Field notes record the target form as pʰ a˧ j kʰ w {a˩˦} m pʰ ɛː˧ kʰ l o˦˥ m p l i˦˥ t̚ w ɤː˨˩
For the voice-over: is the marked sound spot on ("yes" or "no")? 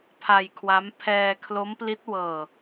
no